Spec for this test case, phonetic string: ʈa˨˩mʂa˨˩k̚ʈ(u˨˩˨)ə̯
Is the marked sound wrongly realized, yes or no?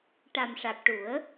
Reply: yes